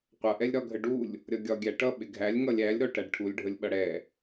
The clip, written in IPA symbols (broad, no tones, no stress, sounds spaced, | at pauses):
qʷ ʌ ʔ ɛ lʲ ɾ ɒ ɡʱ ə ɖ u lʲ | ɾʲ ʌ ɡʲ ɒ ɡʲ æ ʈ ʌ ɓ ɪ ɡʱ æ lʲ ŋ ʌ lʲ æ lʲ ɾ ɔ ʈ æ ɖ ʈʰ u lʲ ɖʱ ə lʲ ɓ ʌ ɽ ɛ